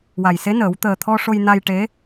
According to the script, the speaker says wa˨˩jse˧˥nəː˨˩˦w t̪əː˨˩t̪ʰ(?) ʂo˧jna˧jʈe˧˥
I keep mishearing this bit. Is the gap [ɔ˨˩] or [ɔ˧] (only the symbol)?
ɔ˧